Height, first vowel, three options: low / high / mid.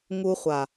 high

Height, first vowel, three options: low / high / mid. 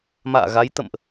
low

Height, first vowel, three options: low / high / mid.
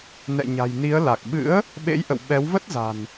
mid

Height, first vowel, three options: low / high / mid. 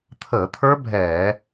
mid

